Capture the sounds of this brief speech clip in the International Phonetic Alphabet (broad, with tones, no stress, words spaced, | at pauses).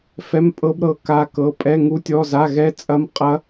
fɛ˧˥˧mpʼɤ˦˥b ɾɤ˦˥ka˦˥kɤ˧˥˧ pʼɛ˧˥˧ ŋu˦˥tʲɔ˧˥˧za˧˥˧ ɣɛ˦˥t͡sʼɐ˦˥mqʼɐ˦˥